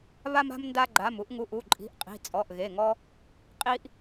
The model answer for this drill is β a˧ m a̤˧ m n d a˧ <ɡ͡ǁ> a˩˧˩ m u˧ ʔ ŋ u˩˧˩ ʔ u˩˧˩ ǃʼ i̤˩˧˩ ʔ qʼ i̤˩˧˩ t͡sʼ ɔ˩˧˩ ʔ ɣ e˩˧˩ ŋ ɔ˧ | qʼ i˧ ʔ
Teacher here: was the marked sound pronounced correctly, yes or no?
no